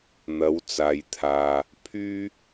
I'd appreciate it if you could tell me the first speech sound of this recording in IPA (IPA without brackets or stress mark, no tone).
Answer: n̪